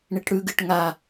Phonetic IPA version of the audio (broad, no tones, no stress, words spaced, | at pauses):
ɳiʈɽʉɡɨʈ ŋa